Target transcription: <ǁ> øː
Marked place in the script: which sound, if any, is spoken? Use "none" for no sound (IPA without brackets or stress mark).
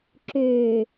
ǁ